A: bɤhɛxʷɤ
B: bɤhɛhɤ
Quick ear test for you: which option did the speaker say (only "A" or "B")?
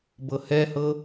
B